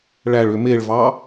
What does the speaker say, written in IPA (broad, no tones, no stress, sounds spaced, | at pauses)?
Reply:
ɭ æ ɭ ø m e ɭ v ɑ